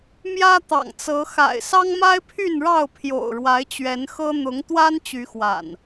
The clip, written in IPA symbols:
mjä˦t̪ɑ̰˨˩ŋt͡sɤ˨˦ xa̰˨˩ɪ̯sɑ˦ŋma˦ɪ̯pʰy˥˨n ɻɑ˥˨ʊ̯pʰjo̰˨˩ʊ̯ɻwa˨˦ɪ̯ t͡ɕɥɛ˨˦nxɤ˦ n̪ʊ˨˦ŋt̪wa˦n t͡ɕy˨˦xwa̰˨˩n

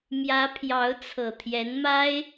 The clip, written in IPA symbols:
mjä˧˥ pʰjɑ˧˥ʊ̯t͡sʰɤ˨˩ t̪ʰjɛ˧˥nma˥ɪ̯

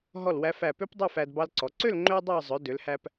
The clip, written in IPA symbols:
ɦɔ˧˩lwæ˧ fæ˧˩pø˥pdˤʉ˥˧fæ˧d bɑ˧lǀɔ˩˧ǀø˥˧l ŋ͡ǃø˥dˤɑ˥˧ zˤœ˩˧dø˩˧lhæ˧p

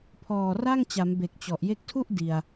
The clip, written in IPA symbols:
pʰɔː˨˩ra˥˩ŋt͡ɕa˩˦m be˨˩k̚t͡ɕɔ˨˩ʔ je˦˥k̚tʰu˥˩ʔ di˨˩a̯

